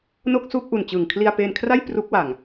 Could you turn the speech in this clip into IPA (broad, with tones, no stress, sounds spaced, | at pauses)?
n o˥˩ k̚ s uː˥˩ k̚ ʔ u˨˩ n t͡ɕ ɯː˨˩ ŋ kʰ l i˧ a̯ p eː˧ n kʰ r a˥˩ j p r u˦˥ k̚ w a˨˩ ŋ